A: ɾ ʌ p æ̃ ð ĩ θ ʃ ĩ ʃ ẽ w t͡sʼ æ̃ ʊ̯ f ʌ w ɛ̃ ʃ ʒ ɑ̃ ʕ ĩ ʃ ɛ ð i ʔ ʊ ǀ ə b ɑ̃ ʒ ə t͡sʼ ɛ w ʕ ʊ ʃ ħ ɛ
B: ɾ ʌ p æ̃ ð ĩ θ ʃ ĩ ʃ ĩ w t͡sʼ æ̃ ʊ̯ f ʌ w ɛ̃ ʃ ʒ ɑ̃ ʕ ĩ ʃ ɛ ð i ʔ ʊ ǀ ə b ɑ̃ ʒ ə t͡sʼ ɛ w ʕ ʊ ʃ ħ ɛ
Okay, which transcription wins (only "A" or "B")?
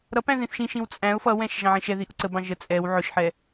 B